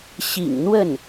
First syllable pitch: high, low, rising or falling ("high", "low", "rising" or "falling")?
low